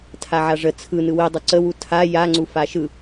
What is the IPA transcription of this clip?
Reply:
tʰaʕaʐə t͡sʰɯ nɯwidˤu ǀəwu tʰa jaŋ͡ǀu faʃɯ

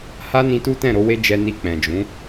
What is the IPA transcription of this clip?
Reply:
ha˦nĩ˧ tu˦tɛ̃˦˨ɾo˧ we˦d͡ʒɛ˧ni˧ k͡pɛ̃˨d͡ʒũ˨˦

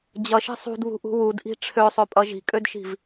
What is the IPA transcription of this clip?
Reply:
d͡ʑʌʃi̤ sˤṳdβṳʔṳ wudʔi̤ ʈ͡ʂʰøsˤøpʼʌ ʒi̤kʼødʃi̤v

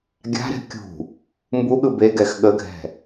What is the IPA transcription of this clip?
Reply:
ɡʲa̤ɾɛ̤ kʲṳ | mbuɠɯ beɡɛx ɠəɡʱɛ̤

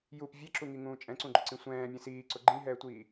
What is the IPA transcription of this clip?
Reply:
jup vʲɛǁuŋiŋũː t͡ʃʼɛ̃ǀũɡ͡ǃʊǀĩ sʷɛ̃ːmʲɛ̃ siːǀʊ ɡ͡ǃĩɦɛːtʷiː

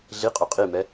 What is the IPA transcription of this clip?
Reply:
ɮiqʼʏ qʼimɛ

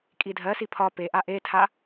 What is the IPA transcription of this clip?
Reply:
kʼidʱɜsi pʰɒ peʔa ʔetʰa

